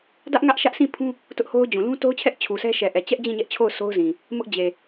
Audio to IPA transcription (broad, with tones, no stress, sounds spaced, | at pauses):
d ä˦ ʔ ŋ ä˦ ʔ ʃ ä˦ ʔ s ĩ˦˨ pʰ ũ˦ | t ʊ˦ ʔ h o˦ ʊ̯ d͡ʑ ũ˨ l ũ˦ t o˦ ʊ̯ t͡ɕʰ ɛ˦ ʔ t͡ɕʰ u˨ s ɛ˦ ʃ ɛ˨ ʔ ɛ˨ t͡ɕ ɛ˦ ʔ d͡ʑ ĩ˦˨ ɲ ɛ˦ ʔ t͡ɕʰ o˦˨ ʊ̯ sʰ o˦ ʊ̯ z ĩ˨ | m ʊ˦ ʔ d͡ʑ e˨